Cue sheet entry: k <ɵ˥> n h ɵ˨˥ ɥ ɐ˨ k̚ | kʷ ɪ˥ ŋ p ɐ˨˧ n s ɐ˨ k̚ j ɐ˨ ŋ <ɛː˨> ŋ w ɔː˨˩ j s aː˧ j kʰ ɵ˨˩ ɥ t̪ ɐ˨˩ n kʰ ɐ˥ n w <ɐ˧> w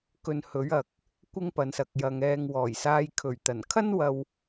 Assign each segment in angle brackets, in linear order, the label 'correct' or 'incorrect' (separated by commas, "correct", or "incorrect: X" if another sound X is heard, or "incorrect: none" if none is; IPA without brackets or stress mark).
incorrect: ɵ˧, correct, correct